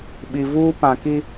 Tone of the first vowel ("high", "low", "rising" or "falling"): low